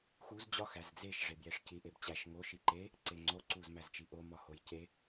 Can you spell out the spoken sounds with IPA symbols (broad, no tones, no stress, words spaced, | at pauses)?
xuz d͡ʑɒ xæzd͡zeʃ ʐebjeʂci ʔebt͡ɕæʃ ŋo ʃiǃe | ǀeŋ͡ǀo ǀuzmæzt͡ʃiʔo mɒhojce